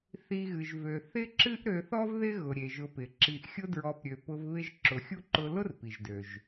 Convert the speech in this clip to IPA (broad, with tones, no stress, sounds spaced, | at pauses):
θ i˨ ɣ ɨ˩ ʒ v ø˩ θ ɪ˥ ǁ ɨ˥ ʔ ɾ ø˨ θ ɔ˥ v ð ɪ˥ ɣ ʊ˩ ɾʲ e˩ ʒ ʊ˨ p ɪ˩ ǁ i˨ ʔ xʲ ʊ˦ d ɹ ɔ˨ p ɾʲ ø˩ p ʊ˦ v β ɪ˥ ʒ ǁ ʊ˨ xʲ u˥ ǃ ʊ˦ l ʊ˥ r p i˩ ʒ d ø˩ ʒ